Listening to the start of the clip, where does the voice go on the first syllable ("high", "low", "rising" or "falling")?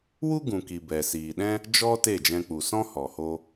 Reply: high